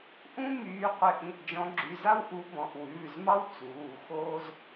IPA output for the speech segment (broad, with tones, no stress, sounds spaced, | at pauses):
ʔ ũ˥ m yː˨˦ qʷ ɪ˨˦ ʔ ĩ˩˧˩ ʔ d͡ʒ ɔ̃˨˦ ɡ͡ǁ y˩˧˩ z a˥ w ʔ u˨˦ b ɔ̃˩˧˩ ʔ w ʉː˩˧˩ z m ɑ˥ w t͡s uː˩˧˩ x oː˥ z